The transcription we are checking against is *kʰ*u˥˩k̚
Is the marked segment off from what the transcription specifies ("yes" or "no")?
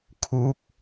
no